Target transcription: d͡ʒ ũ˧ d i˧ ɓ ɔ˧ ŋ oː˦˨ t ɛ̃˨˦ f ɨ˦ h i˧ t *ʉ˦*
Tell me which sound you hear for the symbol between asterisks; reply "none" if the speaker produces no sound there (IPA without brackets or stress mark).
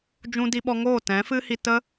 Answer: ə˦